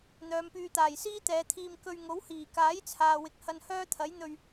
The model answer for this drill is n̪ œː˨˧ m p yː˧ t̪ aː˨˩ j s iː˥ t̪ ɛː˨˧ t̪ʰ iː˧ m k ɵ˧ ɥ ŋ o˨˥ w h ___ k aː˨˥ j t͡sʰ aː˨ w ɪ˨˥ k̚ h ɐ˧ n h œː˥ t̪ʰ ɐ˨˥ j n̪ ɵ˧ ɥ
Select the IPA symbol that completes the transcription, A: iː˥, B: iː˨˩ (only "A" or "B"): B